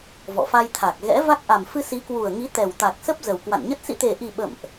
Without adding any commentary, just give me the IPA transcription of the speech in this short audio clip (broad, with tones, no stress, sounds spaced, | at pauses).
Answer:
v ɔ̰˧˨ f a˧ j t̪ʰ a˨˩ k̚ ɣ ɛ̰˧˥ v a˦˥ k̚ ʔ a˨˩ m f ɨ˧ s i˨˦ k w u˨˩ ə̯ ŋ i˨˦ t̪ ɛ˨˩ w t̪ a˨˩ k̚ s ə˦˥ p̚ z ə˨˩ w k w a̰˧˨ n ɲ ə˦˥ t̚ s ḭ˧˨ t̪ e˨˩ ʔ i˨˩ ɓ ə̰˧˨ m ʔ